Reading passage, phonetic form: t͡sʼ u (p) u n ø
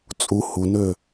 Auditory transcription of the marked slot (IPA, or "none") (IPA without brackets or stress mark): h